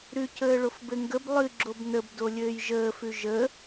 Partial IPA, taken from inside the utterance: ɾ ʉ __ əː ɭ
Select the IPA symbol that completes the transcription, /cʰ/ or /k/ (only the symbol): cʰ